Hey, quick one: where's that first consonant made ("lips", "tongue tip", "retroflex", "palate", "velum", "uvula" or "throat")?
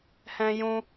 throat